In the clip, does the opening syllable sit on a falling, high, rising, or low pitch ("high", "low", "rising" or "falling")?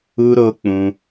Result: high